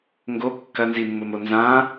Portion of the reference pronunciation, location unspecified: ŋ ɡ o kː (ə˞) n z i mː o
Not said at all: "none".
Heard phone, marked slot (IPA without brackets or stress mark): ɐ